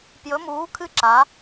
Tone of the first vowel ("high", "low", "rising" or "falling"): rising